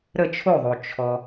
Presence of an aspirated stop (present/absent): present